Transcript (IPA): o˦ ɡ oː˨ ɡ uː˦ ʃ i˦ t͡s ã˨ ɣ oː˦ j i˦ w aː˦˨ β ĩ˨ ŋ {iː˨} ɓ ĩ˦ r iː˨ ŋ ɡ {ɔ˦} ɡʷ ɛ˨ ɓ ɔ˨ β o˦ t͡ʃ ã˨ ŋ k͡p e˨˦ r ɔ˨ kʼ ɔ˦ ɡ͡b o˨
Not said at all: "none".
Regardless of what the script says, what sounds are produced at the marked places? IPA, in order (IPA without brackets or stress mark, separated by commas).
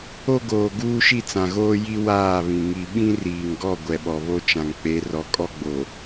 i˨, ɔ˦˨